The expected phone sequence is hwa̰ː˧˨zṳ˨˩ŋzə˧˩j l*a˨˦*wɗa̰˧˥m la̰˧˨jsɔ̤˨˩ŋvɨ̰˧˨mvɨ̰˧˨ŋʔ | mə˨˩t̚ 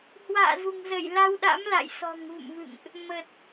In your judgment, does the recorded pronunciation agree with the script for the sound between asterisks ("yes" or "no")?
no